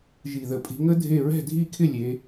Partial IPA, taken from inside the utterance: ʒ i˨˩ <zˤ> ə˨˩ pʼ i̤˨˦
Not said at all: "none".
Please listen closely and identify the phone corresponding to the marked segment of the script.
ð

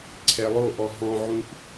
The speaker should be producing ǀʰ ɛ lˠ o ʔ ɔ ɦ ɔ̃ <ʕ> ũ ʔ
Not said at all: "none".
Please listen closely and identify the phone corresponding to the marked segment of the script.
ʕ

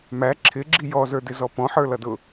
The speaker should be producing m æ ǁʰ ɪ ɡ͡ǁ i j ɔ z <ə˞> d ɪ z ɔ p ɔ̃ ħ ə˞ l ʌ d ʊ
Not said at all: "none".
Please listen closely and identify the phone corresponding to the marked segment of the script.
ə˞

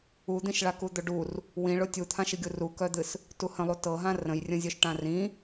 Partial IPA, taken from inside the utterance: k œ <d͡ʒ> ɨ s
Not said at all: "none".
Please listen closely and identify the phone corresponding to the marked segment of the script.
d̪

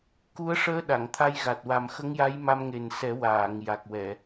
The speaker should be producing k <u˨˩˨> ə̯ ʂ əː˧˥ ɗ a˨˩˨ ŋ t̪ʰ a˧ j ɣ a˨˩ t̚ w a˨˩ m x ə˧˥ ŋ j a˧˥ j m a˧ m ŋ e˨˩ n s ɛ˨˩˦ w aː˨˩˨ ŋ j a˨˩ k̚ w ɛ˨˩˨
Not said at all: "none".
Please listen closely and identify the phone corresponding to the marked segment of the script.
u˧˥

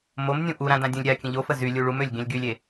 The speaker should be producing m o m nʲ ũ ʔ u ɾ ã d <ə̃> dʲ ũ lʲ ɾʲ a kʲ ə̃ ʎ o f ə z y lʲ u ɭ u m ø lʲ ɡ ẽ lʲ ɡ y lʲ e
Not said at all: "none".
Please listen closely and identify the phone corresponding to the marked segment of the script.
ã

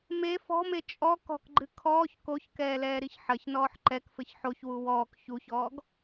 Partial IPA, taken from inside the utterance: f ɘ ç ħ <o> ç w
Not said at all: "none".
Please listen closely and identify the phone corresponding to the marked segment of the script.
o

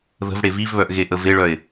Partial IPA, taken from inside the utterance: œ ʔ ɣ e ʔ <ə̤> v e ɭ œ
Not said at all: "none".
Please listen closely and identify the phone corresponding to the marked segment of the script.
ə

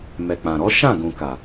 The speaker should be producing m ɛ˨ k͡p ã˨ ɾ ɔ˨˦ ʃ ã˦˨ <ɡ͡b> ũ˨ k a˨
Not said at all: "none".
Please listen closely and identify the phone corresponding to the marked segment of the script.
ɡ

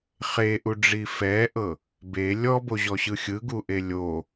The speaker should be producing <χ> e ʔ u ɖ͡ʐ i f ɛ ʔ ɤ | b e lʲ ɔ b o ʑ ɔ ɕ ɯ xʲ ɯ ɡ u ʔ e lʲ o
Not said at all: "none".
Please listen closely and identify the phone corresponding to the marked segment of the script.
χ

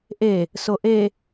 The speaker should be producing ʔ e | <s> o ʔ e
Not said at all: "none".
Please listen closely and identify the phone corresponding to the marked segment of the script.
s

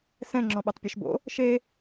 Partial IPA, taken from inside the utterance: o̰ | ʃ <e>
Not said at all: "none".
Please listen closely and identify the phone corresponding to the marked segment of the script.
e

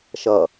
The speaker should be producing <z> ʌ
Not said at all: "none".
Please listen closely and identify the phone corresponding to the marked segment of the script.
ʃ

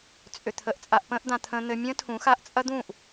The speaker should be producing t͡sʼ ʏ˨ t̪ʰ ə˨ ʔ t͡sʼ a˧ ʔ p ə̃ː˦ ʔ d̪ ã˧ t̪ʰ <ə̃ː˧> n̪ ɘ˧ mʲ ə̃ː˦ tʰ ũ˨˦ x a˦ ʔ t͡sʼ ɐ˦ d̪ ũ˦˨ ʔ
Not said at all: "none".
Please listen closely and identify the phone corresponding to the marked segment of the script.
ə̃ː˧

